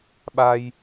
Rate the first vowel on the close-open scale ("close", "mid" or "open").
open